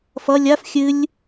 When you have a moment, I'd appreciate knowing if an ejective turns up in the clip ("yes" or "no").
no